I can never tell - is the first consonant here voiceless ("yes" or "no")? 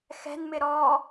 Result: yes